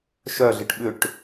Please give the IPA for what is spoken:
ʃ œ ɮ ɪ ʈ ɓ ʏ ʈ

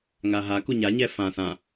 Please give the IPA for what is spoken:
ŋ a ɦ a k u ɲ a ɲ ɛ f ã s ã

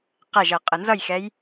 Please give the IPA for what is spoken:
q æ ʒ ʌ qʼ ə n z ʌ j x ɛ j

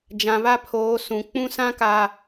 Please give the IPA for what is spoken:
d͡ʒ ã˨ β a˦ pʰ oː˨˦ s ũ˨ k͡p ũ˦ s ã˦ k a˨

